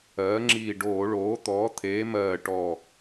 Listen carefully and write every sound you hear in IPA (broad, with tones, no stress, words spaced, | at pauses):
ɜː˩˥ŋ͡ǁiː˧˩ ɖoː˧˩˧ɭoː˩˥t̪ɔː˩˥ t̪ʰeː˩˥mɜː˧˩ ʈɔ˧˩